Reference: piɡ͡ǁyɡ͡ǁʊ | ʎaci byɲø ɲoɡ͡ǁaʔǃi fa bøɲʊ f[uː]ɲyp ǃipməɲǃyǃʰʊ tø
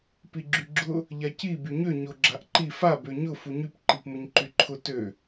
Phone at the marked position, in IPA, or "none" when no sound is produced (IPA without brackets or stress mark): u